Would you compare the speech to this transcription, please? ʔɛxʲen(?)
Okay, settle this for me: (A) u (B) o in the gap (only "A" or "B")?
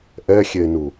A